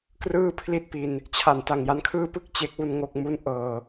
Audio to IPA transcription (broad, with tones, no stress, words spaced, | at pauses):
krɯː˥˩pʰli˥˩t̚pi˧n | t͡ɕʰa˨˩n ta˨˩ŋja˦˥nkʰɯː˥˩ pɯ˥˩k̚ t͡ɕe˦˥k̚wu˥˩nŋo˥˩k̚ mu˥˩nʔɤː˧